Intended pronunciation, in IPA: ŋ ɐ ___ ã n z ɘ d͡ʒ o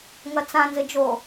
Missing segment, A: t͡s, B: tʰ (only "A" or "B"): A